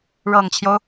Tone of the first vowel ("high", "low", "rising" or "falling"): low